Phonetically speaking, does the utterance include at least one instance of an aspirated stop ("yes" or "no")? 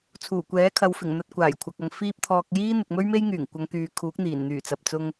yes